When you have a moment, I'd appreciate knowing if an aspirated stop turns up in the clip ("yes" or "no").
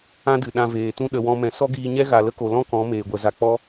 no